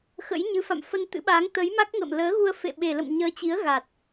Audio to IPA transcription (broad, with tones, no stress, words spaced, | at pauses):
xə̰˧˥jɲɨ˨˦fa̰˧˨mfə˧n t̪ɨ̰˧˥ɓaː˨˦ŋ t̪ə˨˦jma˦˥k̚ŋə̰ː˧˨m ləː˨˦ɣu˧ə̯ fḛ˧˨ɓe˨˩ lə̰˧˨m ɲəː˨˦t͡ɕi˨˦ə̯ɣa˨˩t̚